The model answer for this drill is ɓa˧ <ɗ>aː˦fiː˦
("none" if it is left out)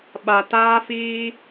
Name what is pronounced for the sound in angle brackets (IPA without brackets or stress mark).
t